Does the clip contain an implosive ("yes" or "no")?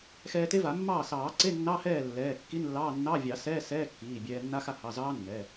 no